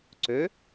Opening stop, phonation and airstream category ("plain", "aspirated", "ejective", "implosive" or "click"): click